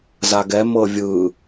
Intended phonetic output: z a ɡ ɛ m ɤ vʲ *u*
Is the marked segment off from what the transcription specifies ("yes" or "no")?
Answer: yes